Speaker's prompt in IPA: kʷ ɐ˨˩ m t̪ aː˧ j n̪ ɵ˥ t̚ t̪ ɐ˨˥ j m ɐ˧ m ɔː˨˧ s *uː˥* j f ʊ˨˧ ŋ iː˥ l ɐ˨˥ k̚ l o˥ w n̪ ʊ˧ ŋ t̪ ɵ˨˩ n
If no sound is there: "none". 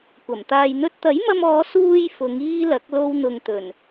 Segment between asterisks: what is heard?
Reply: uː˧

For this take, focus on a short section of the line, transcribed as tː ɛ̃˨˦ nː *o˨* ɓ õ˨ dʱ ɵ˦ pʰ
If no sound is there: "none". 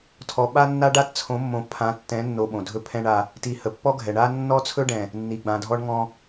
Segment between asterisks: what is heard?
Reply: o˨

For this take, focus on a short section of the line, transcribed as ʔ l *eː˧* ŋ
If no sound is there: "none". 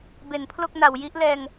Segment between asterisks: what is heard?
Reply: ɛː˧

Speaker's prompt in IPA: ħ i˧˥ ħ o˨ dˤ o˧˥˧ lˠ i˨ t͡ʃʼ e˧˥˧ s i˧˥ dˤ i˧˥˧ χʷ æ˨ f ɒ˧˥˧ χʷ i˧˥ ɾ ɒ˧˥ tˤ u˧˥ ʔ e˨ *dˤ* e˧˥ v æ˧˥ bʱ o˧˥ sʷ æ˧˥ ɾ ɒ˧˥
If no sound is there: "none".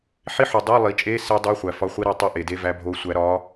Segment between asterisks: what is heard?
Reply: d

